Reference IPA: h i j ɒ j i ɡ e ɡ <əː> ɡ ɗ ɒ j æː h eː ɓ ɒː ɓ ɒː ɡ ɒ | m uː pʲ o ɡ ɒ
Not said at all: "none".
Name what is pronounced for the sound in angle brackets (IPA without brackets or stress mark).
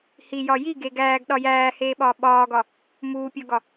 æː